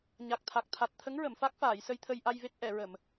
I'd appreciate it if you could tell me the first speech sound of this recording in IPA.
ɲ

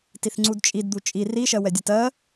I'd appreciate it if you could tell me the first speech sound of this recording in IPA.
t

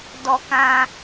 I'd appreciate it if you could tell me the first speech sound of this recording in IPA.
d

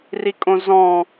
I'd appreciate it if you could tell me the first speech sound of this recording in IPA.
r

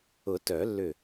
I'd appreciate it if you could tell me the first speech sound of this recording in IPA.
ʊ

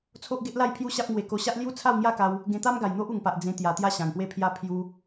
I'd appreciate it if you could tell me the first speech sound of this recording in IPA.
t͡sʰ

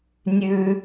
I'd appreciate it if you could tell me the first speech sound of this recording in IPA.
nʲ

